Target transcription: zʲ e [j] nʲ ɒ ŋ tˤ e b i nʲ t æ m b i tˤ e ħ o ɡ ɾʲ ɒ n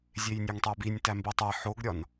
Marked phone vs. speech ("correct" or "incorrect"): correct